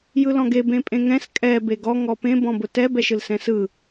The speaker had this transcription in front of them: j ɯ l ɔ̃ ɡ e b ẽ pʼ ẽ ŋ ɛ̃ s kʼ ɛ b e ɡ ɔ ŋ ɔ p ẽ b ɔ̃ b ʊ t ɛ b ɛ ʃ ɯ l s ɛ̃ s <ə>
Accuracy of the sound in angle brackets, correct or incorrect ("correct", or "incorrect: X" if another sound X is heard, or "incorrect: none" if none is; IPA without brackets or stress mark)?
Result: incorrect: ɯ